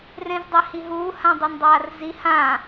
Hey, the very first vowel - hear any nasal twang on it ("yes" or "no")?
yes